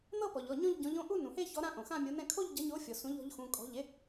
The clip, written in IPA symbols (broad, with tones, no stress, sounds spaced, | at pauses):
n̪ ɤ˥˧ p ɔ˩ ʎ ɔ˩˧˩ ɲ ɔ̃˥˧ ʎ ɟ ɔ̃˨˥ ʎ õ˥˧ ʔ u˥˧ n ũ˩ h e˥˧ ç ɔ˨˥ ɾ ã˥˧ ʔ õ˩ x ã˥˧ mʲ o˨˥ n ɛ̃˥˧ kʰ o˥˧ ʎ ɟ ʌ˨˥ ɲ o˨˥ fʲ ɔ˩ s ũ˨˥ ʎ ɔ̤˨˥ ʎ x ũ˩˧˩ kʼ ɔ̤˩˧˩ ʎ e˨˥